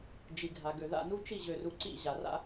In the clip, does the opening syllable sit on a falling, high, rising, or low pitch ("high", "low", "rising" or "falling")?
low